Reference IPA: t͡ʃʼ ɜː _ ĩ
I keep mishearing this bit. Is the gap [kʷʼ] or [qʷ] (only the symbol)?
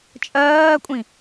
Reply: kʷʼ